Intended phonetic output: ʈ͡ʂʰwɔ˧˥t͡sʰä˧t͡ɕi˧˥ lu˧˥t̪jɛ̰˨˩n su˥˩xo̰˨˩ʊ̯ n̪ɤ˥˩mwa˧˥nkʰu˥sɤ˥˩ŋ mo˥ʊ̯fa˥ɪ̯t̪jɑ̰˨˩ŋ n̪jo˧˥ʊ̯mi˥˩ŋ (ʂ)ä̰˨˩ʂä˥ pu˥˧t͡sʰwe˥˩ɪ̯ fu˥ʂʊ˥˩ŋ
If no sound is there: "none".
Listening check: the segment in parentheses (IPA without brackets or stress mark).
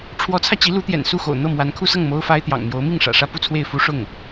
ʂ